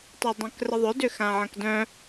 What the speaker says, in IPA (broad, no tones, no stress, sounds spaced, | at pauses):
tˤ œ dˤ œ̃ k r ə ðˤ ʏ d ʏ x ã ʕ ɐ̃ k d œ̃